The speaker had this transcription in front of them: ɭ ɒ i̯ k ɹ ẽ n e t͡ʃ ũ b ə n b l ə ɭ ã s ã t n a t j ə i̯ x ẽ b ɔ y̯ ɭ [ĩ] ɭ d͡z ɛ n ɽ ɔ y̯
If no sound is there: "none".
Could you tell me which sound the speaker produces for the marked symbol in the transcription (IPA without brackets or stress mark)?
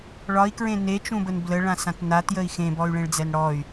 ẽ